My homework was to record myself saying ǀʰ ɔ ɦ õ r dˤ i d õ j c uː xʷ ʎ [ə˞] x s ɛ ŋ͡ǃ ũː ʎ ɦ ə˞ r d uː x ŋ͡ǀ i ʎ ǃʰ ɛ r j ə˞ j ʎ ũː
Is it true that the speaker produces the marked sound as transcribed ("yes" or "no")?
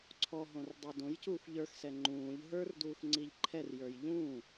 yes